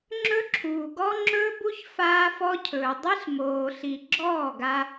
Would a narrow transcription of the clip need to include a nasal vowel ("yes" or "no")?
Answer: no